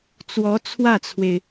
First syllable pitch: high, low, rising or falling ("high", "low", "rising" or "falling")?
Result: rising